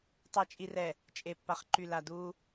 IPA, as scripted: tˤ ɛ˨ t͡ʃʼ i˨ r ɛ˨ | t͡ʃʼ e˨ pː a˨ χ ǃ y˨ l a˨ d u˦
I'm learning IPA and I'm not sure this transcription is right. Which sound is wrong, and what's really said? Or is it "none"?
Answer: none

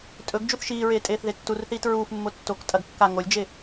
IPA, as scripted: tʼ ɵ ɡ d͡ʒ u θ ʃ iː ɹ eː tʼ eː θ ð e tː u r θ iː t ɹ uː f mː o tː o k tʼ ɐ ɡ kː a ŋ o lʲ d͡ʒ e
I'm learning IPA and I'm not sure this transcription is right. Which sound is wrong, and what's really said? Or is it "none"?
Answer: none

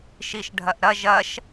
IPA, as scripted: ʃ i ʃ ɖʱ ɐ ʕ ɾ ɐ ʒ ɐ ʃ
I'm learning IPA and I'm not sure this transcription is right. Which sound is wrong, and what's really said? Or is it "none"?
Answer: ʕ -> ʔ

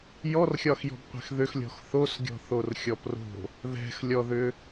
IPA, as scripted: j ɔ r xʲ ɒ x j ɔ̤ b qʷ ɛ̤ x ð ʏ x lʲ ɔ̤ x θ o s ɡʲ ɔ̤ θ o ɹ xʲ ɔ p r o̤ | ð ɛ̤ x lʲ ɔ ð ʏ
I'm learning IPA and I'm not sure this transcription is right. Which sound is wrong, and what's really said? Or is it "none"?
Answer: ɹ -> r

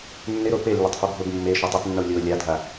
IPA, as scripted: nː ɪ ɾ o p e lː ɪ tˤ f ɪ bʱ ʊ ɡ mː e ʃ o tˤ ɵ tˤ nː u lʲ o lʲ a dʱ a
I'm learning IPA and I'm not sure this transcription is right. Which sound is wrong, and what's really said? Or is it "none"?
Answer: ɵ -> ʊ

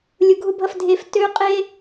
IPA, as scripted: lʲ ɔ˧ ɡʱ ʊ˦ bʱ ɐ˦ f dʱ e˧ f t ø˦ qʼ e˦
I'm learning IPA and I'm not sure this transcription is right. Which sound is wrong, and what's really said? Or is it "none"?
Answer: ɔ˧ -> ʊ˧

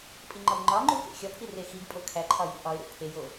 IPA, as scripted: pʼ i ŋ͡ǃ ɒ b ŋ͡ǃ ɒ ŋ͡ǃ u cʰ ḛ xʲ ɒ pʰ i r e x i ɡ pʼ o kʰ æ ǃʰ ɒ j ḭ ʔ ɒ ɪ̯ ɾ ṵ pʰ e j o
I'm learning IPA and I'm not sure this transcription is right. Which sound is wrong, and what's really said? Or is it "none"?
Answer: cʰ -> k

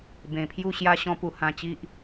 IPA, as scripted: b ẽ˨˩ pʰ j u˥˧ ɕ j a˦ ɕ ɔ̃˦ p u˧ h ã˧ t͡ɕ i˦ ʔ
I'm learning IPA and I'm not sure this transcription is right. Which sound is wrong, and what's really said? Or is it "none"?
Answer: none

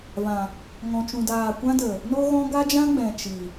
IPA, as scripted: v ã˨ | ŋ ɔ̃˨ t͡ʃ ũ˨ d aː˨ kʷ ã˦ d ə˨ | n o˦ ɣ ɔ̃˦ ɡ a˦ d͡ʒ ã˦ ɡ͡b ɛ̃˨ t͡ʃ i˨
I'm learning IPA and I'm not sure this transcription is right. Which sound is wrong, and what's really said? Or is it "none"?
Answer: none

